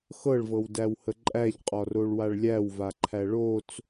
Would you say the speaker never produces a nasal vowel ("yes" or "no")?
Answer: yes